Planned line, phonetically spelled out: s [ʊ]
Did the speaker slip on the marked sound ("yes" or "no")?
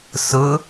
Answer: no